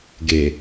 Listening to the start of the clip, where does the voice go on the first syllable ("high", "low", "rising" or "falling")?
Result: low